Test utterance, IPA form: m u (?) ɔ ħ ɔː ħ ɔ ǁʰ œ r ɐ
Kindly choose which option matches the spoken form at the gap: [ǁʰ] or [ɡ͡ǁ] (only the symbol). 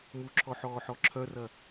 ǁʰ